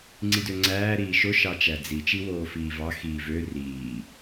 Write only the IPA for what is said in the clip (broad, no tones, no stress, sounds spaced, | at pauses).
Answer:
ŋ͡ǀ i d ø ŋ͡ǀ æː ɾ iː ʃ o ʃ ɑ t͡ʃ æ d͡z i t͡ʃ i w oː f iː v ɑ x iː v ø r iː